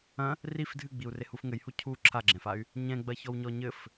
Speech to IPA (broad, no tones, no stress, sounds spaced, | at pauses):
ɐ̃ | r i f dʱ ɨ ɡ͡b i u̯ r e h u f ŋ ɘ j h u cʰ u ǁʰ a ɡ͡ǁ ɛ̃ f a y̯ | ɲ ɛ̃ ɡ͡b ɐ ç ɔ w ɲ ɔ ɲ ɘ f